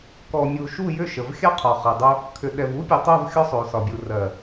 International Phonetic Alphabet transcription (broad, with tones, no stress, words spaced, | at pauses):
kɔ˨ mʲu˨ʃu˦˨jʏ˦˨ ʃə˨v xʲɑ˦qʰɒ˨χɜ˨dˤo˦ | kʰʏ˨ ɗɛ˨vu˦pʲu˨tˤo˦˨v xʲɔ˦sˤo˨sɒ˨bʲu˨ rɜ˨